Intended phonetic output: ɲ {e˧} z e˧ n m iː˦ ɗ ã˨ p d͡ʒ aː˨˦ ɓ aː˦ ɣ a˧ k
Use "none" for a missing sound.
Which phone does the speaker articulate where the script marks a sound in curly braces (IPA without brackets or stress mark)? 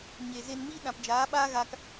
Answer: e˨